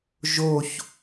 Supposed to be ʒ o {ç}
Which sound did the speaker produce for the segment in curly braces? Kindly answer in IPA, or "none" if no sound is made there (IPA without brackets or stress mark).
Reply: ç